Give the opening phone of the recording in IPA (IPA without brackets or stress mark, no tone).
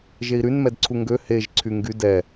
ʒ